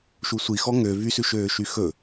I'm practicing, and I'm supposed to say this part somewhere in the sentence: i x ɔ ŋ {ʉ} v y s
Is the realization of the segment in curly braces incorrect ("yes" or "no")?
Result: yes